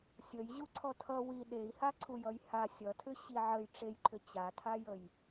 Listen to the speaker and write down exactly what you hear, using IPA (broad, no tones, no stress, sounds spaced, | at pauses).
sʲ ə j ʑ u ǀʰ ɔ tʰ ʌ w i ɗ e i̯ h a ǀʰ u j ʌ j h a sʲ ʌ tʰ ʏ ɕ i ʕ ə j ʈ͡ʂ e j ǃʰ ʏ t͡ɕ a tʰ a j ə j